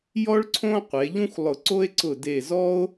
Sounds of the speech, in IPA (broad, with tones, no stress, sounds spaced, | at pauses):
j ɔ˥ ɭ ǀʰ õ˥ qʷ e˩˧ ʎ ũ˥ xʷ lˠ ʊ˧˩ ǀ o˥ e̯ ǀ ʊ˧˩ d e˧˩ z ɔ˥ o̯